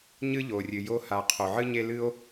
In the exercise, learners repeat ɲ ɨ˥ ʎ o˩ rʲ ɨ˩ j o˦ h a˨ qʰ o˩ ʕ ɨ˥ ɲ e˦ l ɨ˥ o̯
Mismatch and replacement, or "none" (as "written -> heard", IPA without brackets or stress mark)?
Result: none